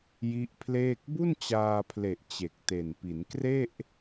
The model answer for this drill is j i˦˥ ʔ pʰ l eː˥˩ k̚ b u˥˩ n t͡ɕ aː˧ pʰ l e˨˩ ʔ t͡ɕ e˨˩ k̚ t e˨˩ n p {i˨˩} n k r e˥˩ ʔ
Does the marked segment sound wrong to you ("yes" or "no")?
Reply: yes